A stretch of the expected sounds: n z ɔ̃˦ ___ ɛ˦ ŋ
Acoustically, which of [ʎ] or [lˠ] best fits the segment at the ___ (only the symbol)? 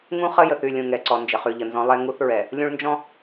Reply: lˠ